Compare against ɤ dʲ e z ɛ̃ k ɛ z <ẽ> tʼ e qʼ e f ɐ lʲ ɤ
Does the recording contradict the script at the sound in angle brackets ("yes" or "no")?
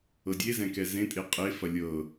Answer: no